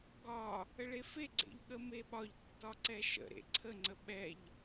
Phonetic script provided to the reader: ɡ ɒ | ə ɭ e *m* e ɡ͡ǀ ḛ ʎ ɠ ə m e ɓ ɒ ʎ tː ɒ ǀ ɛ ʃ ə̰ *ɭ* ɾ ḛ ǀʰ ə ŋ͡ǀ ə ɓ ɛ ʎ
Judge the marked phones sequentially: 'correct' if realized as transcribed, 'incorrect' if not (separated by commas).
incorrect, incorrect